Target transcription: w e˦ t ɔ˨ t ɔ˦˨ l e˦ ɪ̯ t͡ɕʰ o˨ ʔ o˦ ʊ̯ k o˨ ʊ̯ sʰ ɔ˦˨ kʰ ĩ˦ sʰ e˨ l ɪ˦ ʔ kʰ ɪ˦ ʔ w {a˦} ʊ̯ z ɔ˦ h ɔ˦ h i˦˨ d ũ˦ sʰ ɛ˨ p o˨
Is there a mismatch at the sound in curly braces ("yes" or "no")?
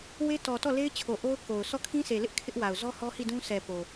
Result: yes